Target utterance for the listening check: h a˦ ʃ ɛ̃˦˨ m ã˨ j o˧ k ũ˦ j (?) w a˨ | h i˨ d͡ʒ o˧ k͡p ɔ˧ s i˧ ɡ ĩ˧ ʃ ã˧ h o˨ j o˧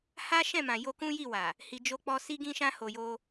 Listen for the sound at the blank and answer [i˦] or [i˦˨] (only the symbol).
i˦˨